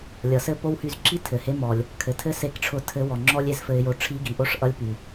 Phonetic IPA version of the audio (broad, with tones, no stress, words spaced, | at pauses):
lʲʌ˩sɘ˥po˥why˧z ǁi˥tʰɘ˩he˧˥ mɔ˩lʲ | kʰɘ˩tʰɘ˥ se˧˥kʈ͡ʂʰʊ˧˥ tʰɘ˧˥wɔ˩ ŋ͡ǁɔ˥lʲ e˧zfɘ˧ɪ̯jo˧ ʈ͡ʂʰi˧˥ɡi˩ ʔo˥ʂʔʌ˧˥lʲpy˩